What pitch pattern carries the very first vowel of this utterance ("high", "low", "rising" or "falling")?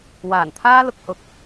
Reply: low